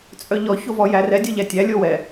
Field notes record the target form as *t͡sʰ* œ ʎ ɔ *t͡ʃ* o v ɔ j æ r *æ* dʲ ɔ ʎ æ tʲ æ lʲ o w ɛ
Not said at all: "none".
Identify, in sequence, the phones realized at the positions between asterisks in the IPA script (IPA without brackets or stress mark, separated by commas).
t͡sʼ, ç, ɛ